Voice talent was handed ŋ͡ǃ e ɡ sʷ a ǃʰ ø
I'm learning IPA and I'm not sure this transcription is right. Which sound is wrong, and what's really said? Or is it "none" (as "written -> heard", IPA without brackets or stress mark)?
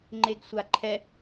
ø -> ɛ